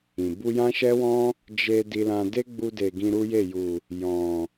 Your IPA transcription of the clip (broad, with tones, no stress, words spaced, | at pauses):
ĩ˨ bu˧jã˦ʃɛ˦wɔ̃˦ | d͡ʒe˧ di˧lã˧ de˦ɡ͡bu˧de˨ ɡĩ˧ɾu˦je˦˨ ju˨ | jɔ̃˨